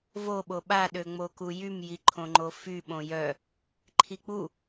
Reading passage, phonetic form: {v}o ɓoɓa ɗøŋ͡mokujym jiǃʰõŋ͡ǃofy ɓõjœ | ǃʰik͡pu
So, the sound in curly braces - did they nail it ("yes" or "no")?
yes